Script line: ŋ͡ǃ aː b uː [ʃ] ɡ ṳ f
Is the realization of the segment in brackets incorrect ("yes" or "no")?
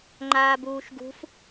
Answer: no